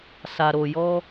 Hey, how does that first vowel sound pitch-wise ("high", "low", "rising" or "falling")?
low